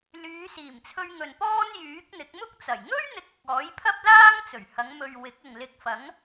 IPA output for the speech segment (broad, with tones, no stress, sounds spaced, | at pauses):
l yː˨˧ s iː˨˩ m t͡sʰ ɵ˧ ɥ ŋ ɵ˨ n p ɔː˥ n j yː˨˥ k̚ n̪ ɪ˨˥ k̚ m ʊ˥ k̚ t͡s ɐ˨˩ j ŋ ɵ˥ ɥ n̪ ɪ˨˥ k̚ ʊ˨ k̚ ɔː˨˥ j pʰ ɐ˥ p̚ l aː˥ ŋ t͡s ɵ˨˩ ɥ h ɐ˨˧ ŋ m ɵ˨ ɥ w ɪ˨˥ k̚ ʊ˨ ŋ l ɪ˧ k̚ f ɐ˨˥ ŋ